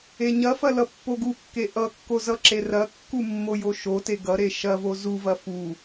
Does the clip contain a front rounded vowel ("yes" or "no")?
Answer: no